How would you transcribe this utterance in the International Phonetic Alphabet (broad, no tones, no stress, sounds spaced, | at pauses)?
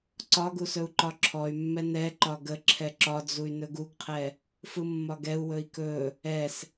ǀ ɒ ɡ u s ɵ u̯ ǃ ɒ ǁʰ ɔ y̯ mː ɛ n ɛ ǃ ɒ ɡ ə ǁʰ ɛ ǁ ɒ d͡z u y̯ n ɵ ɡ u ɡ qʰ ɛ | f ɯ mː ɒ ɡ ɛ u̯ w ɵ i̯ k ɵ | ɛ s